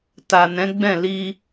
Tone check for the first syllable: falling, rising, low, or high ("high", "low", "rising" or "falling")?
low